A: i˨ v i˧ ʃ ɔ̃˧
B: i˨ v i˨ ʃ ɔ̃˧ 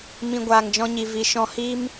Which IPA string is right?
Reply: B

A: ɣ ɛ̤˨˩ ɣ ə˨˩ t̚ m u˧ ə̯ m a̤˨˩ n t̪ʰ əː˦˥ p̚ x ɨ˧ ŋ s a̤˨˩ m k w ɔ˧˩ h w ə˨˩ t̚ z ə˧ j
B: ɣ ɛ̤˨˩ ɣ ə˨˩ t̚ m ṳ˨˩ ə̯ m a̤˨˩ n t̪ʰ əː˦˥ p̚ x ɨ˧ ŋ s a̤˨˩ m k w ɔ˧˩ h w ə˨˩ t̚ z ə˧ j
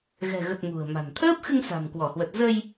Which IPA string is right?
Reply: B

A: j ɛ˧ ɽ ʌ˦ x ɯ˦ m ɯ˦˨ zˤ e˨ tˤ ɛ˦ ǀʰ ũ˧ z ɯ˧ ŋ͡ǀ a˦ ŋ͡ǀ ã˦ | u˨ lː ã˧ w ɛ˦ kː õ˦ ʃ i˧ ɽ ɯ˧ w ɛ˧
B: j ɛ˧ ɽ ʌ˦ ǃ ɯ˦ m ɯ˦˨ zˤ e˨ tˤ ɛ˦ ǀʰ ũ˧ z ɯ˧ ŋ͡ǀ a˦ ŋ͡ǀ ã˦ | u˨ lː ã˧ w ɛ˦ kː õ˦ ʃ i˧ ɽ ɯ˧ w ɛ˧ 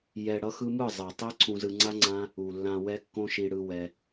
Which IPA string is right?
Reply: A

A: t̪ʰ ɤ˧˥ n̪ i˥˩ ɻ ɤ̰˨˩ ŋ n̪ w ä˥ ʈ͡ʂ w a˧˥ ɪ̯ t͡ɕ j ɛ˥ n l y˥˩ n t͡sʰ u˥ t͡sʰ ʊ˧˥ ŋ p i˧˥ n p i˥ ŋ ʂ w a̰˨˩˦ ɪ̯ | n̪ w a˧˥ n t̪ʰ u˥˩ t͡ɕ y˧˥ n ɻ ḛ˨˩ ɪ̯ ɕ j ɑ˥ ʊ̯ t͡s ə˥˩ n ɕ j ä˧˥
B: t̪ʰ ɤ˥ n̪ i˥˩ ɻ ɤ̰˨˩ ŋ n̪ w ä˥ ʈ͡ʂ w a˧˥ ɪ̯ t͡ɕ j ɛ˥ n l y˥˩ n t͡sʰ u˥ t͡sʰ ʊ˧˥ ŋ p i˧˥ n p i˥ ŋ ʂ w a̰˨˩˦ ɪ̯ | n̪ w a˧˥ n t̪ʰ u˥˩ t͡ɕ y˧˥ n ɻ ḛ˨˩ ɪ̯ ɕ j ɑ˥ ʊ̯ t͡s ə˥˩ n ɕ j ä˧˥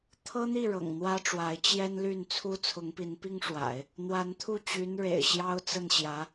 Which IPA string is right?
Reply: B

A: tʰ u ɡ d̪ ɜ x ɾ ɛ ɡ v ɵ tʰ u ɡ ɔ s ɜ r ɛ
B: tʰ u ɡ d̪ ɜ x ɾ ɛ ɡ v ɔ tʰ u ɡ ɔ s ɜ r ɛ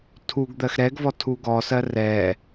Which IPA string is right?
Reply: B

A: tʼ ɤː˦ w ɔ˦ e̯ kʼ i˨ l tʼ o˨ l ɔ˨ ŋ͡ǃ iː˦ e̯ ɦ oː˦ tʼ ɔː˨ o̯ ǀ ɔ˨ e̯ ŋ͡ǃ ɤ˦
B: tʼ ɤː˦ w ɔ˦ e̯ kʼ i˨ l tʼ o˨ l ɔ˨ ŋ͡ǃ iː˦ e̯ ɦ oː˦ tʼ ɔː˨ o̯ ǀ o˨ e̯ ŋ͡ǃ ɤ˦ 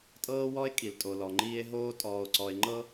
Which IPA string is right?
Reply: A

